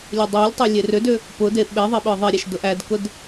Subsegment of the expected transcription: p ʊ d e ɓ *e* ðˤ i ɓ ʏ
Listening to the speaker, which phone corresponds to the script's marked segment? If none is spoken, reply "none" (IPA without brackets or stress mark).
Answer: e